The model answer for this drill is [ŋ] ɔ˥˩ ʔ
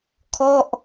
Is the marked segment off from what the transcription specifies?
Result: yes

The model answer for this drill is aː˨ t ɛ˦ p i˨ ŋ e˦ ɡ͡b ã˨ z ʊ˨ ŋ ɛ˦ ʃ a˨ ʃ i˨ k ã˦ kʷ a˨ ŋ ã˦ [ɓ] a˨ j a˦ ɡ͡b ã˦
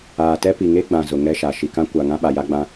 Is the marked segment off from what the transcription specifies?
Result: no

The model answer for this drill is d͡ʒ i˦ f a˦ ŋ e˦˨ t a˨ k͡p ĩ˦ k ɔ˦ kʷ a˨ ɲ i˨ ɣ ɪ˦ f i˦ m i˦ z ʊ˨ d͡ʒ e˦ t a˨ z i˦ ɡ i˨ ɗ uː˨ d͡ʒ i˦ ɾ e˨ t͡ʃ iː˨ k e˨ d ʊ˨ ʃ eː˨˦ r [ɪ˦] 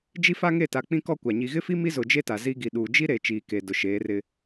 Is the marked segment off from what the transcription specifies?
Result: no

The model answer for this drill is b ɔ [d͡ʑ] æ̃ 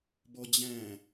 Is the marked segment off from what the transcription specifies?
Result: no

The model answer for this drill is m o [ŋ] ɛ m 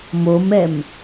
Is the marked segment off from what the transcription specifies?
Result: yes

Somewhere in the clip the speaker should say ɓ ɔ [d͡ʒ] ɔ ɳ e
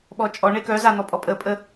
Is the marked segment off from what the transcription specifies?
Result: yes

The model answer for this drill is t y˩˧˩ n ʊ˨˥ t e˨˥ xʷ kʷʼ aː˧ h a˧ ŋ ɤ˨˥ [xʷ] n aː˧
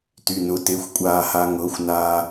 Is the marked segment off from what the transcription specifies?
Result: no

